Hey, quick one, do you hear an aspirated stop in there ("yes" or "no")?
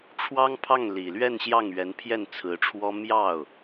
yes